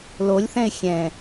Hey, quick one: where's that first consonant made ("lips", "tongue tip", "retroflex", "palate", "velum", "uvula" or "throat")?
tongue tip